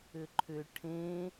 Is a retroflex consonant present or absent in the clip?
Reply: present